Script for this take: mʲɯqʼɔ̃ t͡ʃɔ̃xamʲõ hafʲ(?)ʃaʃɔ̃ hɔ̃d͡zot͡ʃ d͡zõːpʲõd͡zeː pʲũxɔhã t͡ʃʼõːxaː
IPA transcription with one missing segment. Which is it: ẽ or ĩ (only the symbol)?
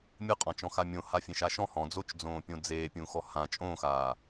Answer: ẽ